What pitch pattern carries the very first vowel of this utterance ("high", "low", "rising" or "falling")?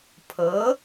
rising